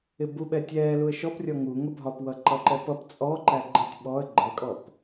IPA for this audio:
ɪ b u ɓ ɛ tʲ ɛː l u ə̯ ʃ ɔ p rʲ ɔ ŋ u ŋ ə bʱ ɒ p w ʌ ǃ ʌ ǃ ɛ p ʌ p t͡sʼ ɔ ǃ æ ɡ͡ǃ ɪ tʲ ɓ ɔ ə̯ ɡ͡ǃ ɛ kʼ ɔ p

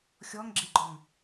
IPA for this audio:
xʲ ɔ ŋ ɡ͡ǁ e ɡ͡ǃ ɔ ŋ

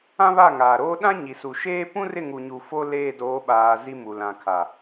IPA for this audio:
ã˦ β a˦˨ ŋ aː˨ ɾ oː˦ ɗ ã˦ ɲ i˨ s u˨ ʃ eː˦ p ũ˦ r ɪ˦˨ ŋ u˨ ɲ u˨ f o˦ l eː˦˨ d oː˨˦ ɓ aː˨ z i˨ m u˨ l ã˨ kʰ a˨

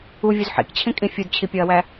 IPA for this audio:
u vʲ u z ħ ḭ k t͡ɕʰ ĩ kʼ ĩ fʲ u d t͡ɕʰ i pʲ ɒ ɐ̯ w æ

